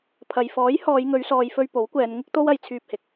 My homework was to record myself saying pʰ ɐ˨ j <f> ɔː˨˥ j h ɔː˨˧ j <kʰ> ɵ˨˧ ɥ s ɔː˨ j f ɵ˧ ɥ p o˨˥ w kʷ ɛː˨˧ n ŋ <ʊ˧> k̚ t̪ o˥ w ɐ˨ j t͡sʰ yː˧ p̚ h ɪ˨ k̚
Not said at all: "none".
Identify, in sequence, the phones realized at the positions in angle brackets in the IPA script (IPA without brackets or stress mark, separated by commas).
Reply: f, ŋ, ʊ˥